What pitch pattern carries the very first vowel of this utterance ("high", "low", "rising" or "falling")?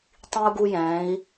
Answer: high